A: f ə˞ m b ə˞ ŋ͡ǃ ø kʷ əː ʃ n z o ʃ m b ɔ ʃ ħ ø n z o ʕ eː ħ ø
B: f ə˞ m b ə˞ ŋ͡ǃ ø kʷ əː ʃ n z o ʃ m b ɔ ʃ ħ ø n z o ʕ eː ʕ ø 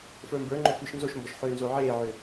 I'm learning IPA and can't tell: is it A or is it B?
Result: B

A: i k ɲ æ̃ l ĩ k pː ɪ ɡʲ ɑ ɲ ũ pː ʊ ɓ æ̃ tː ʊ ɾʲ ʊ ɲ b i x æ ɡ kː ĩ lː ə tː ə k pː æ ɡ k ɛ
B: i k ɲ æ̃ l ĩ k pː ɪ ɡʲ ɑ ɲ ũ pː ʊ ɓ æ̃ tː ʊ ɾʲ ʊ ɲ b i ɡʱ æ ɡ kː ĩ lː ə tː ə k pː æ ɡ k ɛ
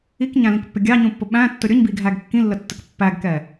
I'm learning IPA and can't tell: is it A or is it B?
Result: B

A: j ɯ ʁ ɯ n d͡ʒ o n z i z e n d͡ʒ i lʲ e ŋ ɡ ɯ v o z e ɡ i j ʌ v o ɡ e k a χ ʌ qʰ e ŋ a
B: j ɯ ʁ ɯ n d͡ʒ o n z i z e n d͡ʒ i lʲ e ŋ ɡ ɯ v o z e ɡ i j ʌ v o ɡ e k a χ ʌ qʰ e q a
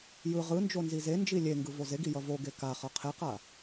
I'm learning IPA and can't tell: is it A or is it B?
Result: B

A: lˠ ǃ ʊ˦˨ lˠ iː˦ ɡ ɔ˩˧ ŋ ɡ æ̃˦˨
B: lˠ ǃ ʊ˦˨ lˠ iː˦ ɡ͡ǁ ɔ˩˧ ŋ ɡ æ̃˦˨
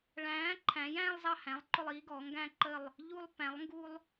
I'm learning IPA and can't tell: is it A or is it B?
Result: A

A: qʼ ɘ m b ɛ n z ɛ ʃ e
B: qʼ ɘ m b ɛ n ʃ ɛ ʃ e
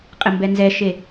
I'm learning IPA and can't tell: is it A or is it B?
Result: A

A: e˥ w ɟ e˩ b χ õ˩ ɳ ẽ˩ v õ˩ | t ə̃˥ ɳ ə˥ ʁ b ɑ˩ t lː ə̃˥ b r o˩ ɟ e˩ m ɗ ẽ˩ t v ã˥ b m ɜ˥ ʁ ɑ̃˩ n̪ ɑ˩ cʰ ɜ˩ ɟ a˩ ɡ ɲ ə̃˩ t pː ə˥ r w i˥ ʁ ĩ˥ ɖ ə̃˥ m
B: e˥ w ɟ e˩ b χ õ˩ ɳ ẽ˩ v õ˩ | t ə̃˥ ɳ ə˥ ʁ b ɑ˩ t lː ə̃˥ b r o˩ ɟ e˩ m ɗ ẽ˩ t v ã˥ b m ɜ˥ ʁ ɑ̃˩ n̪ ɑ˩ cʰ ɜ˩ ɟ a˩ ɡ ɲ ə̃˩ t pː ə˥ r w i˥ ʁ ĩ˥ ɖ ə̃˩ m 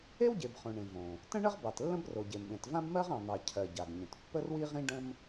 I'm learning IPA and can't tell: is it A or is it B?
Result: A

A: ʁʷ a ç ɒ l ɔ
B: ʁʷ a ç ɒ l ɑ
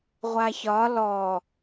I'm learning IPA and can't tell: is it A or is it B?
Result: A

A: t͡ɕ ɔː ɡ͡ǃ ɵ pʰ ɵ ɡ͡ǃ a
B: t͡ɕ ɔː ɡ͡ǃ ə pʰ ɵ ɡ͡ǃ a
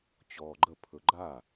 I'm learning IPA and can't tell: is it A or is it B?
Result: B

